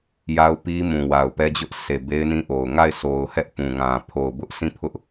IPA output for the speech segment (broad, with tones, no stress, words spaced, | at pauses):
ja˦ʊ̯pi˦ mũ˨wa˨ʊ̯pɛ˦d͡ʑʊ˦ʔ se˨be˦ɪ̯nĩ˦ʔo˨ʊ̯ ŋa˦˨ɪ̯so˨ʊ̯hɛ˦ʔ pũ˨ŋã˨ pʰo˨ʊ̯bʊ˦ʔsʰĩ˦˨ pʰʊ˦ʔ